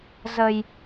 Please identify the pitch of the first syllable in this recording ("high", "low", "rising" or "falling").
low